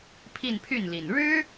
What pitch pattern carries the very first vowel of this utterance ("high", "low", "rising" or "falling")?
falling